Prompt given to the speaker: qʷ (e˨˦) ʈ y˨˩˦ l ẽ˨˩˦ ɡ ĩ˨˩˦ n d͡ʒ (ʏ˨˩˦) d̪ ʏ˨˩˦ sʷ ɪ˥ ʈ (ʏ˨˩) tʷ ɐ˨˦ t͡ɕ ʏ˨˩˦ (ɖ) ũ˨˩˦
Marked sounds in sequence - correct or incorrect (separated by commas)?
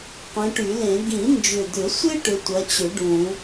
incorrect, incorrect, incorrect, correct